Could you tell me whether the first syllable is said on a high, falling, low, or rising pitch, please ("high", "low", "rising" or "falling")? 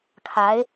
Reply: rising